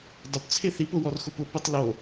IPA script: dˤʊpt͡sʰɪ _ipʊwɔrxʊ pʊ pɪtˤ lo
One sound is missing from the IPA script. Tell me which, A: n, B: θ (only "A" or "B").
B